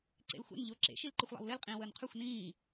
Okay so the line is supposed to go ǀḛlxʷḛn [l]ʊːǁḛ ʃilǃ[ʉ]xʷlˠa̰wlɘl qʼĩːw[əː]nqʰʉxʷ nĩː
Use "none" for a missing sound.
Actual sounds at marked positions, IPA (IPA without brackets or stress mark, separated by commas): ʎ, ɘ, əː